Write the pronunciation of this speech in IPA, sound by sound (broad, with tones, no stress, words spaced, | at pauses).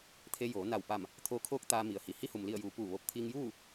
t̪ʰe˧joː˩˧na˧˩w pa˧˩m | t̪ʰoː˧kʰoː˧˥k̚ t̪aː˧mi˩ə̯hi˩ hi˧˥hu˩mli˧˩ə̯juː˩˧ puː˧˩ʋo˧p̚ t̪ʰiː˧ŋjuː˥˨